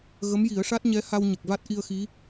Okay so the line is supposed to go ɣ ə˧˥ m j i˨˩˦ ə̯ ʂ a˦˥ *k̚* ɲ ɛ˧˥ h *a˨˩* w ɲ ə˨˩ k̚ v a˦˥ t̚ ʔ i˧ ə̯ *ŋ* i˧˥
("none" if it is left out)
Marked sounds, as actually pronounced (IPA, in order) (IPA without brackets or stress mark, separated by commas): t̚, a˧, x